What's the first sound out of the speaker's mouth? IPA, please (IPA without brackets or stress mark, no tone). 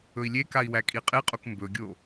ɵ